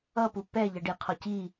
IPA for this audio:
ʌ p u p ɛ ʎ ʌ ɖ i qʰ ɔ c i

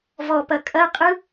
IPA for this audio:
v ɔ p ɐ kʼ ɐ qʼ ɯ

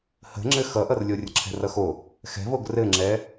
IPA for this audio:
h ə̤ ŋ͡ǁ ɘ x ʌ ʔ ʌ r lʲ o rʲ ə̤ ǁʰ ɛ̤ r ʌ x o | x ɛ̤ v o ɡ r ɘ ŋ͡ǁ ɛ

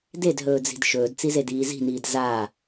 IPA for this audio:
d e d ɦ ɵː d͡z i̤ d ʃ ɵː d t͡s i z e d iː z i̤ n iː d z aː

